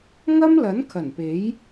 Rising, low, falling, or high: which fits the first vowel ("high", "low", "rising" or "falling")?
high